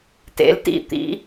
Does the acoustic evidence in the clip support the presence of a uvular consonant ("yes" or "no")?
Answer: no